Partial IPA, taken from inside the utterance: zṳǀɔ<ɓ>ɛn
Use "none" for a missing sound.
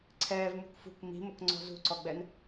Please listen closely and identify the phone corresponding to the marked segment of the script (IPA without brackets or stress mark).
ɡ͡b